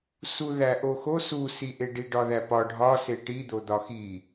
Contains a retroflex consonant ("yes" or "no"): yes